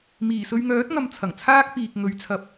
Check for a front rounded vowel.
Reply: present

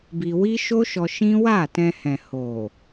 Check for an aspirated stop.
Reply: absent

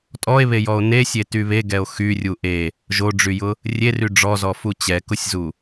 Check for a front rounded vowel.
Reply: present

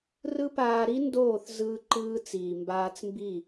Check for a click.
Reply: present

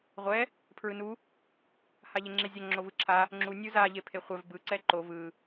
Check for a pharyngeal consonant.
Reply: absent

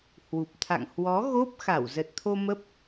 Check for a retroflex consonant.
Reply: absent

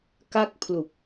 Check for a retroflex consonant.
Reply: absent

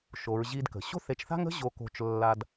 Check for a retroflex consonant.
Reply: absent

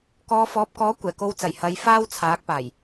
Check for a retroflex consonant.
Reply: absent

